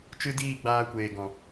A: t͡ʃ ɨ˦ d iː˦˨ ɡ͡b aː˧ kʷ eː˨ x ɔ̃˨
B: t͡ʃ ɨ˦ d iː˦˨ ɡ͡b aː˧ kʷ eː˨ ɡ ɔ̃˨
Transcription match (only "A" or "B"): B